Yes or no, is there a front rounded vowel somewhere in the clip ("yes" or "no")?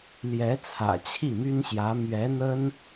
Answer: yes